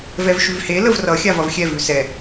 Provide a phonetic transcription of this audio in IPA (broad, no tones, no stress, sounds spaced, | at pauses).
v ɛ v ʃ ʉ v h e l ə v r ʌ xʲ a v ʌ v xʲ ɛ v ʉ s ɛ